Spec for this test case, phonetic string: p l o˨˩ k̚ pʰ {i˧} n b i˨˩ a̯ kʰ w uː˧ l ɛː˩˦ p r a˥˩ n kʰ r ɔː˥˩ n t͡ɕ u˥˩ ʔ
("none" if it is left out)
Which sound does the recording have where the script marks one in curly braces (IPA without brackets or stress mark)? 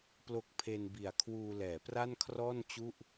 e˧